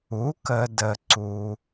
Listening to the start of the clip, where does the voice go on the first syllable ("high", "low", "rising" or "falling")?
rising